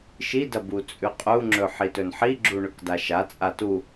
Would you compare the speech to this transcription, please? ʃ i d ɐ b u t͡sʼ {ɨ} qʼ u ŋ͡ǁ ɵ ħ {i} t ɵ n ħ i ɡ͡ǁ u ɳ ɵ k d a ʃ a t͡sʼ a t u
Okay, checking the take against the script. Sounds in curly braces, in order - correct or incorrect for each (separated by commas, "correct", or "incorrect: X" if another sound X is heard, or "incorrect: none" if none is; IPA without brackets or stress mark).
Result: incorrect: ʉ, correct